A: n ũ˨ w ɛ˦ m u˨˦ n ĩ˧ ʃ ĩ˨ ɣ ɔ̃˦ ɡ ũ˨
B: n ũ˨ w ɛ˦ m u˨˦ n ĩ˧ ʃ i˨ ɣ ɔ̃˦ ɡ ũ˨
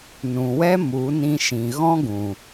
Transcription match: A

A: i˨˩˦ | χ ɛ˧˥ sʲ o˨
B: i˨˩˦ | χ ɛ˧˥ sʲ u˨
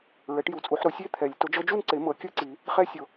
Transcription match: A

